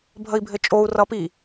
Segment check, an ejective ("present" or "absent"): present